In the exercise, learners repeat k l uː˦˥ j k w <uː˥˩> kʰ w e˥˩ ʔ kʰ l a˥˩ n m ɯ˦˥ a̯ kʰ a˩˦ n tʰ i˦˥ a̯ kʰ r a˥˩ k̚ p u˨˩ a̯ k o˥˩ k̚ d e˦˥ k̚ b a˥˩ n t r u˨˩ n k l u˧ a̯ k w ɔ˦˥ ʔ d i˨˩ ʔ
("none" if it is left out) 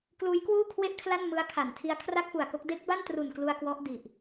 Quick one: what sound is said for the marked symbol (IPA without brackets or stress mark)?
uː˥˩